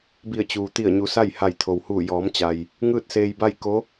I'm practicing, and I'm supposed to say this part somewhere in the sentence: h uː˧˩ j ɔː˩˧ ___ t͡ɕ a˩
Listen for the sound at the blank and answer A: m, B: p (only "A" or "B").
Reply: A